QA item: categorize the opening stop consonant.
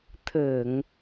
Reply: aspirated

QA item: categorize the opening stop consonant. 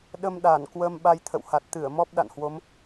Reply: implosive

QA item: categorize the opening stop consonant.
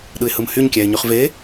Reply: implosive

